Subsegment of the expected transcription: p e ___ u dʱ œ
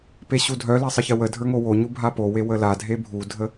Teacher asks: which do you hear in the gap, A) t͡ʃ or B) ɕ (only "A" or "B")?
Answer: B